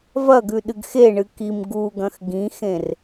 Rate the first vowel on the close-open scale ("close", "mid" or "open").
open